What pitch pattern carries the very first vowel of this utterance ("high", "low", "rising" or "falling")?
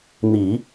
low